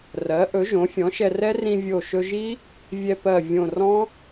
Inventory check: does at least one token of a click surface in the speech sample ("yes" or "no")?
no